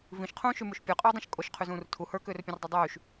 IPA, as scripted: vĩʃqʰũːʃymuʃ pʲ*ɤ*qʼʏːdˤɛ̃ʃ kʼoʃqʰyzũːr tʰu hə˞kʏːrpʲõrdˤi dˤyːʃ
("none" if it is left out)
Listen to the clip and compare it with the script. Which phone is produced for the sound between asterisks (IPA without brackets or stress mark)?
ə˞